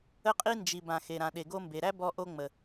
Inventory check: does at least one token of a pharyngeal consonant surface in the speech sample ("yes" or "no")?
no